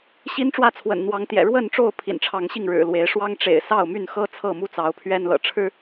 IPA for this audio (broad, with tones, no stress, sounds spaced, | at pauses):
ɕ i˦ n ʈ͡ʂ w ä˥˨ t͡sʰ w ə̰˨˩ n n̪ w ɑ˨˦ ŋ t̪ j ɛ̰˨˩ ɻ w ə˥˨ n ʈ͡ʂ o˥˨ ʊ̯ pʰ ḭ˨˩ n ʈ͡ʂʰ ɑ˨˦ ŋ ɕ i˥˨ ŋ ɻ ɻ̩˨˩ l w e˨˦ ɪ̯ ʂ w ɑ˦ ŋ ʈ͡ʂ ḛ˨˩ ɪ̯ s ɑ˥˨ ʊ̯ m y˥˨ n x ɤ˦ t͡sʰ ɤ˥˨ m u˥˨ t͡s ɑ˨˦ ʊ̯ pʰ ɥ ɛ˦ n l ɤ̰˨˩ ʈ͡ʂʰ ɻ̩˦